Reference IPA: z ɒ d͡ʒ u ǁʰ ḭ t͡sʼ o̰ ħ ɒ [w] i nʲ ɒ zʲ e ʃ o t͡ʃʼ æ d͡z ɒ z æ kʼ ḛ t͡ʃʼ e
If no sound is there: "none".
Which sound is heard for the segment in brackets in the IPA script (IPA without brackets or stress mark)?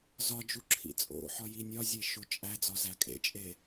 j